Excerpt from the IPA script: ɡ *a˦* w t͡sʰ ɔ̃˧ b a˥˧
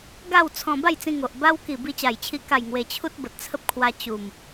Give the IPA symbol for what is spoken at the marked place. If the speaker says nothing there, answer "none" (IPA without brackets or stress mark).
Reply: a˥˧